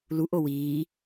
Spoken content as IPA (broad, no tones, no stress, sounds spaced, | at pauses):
l u ʔ o w iː